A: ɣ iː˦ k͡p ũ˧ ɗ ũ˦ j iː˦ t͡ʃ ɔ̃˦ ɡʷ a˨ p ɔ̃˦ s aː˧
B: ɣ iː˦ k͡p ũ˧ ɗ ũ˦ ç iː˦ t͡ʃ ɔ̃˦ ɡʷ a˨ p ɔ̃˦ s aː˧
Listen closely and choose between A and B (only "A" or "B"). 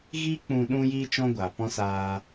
A